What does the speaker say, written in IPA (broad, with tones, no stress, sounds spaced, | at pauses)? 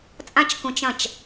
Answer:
t͡sʼ ã˦ t͡ʃ k ũ˧ t͡ʃ ɐ̃˦˨ t͡ʃ